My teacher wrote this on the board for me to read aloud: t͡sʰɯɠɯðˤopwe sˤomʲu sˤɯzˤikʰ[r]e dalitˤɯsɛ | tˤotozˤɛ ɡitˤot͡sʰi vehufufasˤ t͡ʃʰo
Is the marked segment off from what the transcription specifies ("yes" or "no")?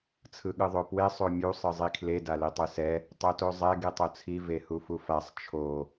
yes